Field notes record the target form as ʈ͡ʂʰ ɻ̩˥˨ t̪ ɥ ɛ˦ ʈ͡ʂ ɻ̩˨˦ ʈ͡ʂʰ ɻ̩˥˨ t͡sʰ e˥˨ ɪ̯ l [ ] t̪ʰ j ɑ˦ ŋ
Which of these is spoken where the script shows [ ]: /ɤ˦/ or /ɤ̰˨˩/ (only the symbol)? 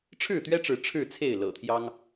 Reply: ɤ̰˨˩